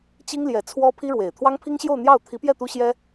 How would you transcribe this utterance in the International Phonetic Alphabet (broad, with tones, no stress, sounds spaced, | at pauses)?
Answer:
t͡ɕ i˥ ŋ l j ɛ˧˥ t͡sʰ w ɔ˥ pʰ i˥ ɻ w e˨˩ ɪ̯ t̪ʰ w ɑ˥ ŋ pʰ i˥ ŋ ɕ j o˥˧ ʊ̯ n̪ j ɑ˥˩ ʊ̯ t̪ʰ i˧˥ p j ɛ˥˩ t̪ u˥ ɕ j ɛ˥